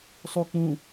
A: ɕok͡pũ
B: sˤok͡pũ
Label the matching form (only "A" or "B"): B